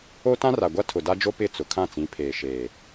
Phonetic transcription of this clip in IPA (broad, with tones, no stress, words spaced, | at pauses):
o˦tã˦ra˨ ɡʷa˦tʰʊ˨da˦d͡ʒo˦ pɪ˦˨t͡sʊ˨ kʰã˦˨t͡sĩ˨˦pʰeː˨ ʃeː˨